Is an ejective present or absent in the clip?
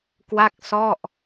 absent